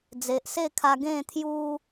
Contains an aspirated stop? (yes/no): yes